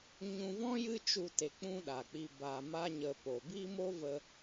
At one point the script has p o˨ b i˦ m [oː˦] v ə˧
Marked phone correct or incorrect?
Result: incorrect: o˦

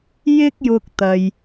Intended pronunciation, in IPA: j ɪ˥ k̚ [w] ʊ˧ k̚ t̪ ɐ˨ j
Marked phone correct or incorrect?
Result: incorrect: j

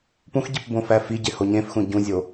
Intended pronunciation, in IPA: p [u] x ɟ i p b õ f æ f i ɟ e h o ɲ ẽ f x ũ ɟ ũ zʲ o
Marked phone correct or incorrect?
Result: incorrect: ũ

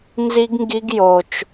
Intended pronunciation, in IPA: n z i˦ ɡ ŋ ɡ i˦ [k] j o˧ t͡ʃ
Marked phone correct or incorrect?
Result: incorrect: ɡ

